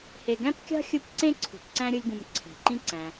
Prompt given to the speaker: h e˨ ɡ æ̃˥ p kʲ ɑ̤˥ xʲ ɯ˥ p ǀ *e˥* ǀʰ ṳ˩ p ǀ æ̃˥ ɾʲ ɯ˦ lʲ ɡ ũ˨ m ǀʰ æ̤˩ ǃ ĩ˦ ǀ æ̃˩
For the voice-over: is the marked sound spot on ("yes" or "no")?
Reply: no